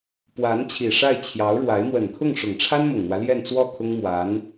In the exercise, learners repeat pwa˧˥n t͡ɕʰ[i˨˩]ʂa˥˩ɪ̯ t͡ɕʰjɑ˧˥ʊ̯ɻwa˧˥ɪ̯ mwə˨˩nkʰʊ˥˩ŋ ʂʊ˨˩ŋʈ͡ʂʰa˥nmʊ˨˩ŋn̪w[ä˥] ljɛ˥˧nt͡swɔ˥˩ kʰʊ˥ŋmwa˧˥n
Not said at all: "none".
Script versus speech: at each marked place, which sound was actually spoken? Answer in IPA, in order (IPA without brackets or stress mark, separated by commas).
i˨˩, ä˦